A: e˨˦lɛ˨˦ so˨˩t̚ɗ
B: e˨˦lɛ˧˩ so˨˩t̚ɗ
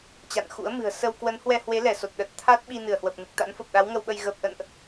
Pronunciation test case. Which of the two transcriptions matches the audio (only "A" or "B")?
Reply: B